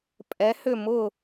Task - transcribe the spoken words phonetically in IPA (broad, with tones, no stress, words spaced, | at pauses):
pʼɛ˩˥hʏ˥˩mʊː˥˩